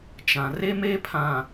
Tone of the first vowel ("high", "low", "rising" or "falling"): low